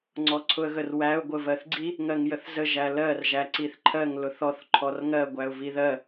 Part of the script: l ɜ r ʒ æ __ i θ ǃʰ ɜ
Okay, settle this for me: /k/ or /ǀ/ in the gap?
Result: ǀ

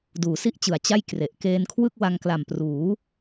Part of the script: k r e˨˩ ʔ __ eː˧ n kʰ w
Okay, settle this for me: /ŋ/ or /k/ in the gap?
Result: k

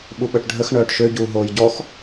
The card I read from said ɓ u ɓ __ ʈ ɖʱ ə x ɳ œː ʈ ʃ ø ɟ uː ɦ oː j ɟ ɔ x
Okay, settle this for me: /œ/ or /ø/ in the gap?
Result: œ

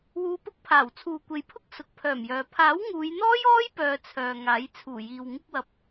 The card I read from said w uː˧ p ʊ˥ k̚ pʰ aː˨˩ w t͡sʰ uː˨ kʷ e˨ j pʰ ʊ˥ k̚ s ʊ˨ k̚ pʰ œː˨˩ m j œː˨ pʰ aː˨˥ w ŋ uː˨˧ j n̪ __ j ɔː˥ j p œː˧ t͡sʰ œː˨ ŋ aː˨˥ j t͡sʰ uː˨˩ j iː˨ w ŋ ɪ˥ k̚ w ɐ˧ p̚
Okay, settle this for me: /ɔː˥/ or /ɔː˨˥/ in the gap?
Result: ɔː˥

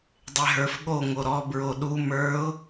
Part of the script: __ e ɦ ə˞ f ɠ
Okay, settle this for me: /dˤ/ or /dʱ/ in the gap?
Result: dˤ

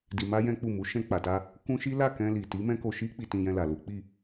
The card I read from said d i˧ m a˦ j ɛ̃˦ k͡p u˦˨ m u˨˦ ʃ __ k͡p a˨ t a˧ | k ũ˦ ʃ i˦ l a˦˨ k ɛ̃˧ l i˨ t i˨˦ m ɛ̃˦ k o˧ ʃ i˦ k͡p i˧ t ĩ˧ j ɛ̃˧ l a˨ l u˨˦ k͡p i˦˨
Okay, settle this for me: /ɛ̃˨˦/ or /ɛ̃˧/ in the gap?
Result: ɛ̃˧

